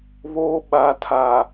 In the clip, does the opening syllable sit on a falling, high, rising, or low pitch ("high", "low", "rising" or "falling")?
high